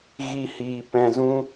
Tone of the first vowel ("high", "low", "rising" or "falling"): high